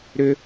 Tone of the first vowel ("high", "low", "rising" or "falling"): high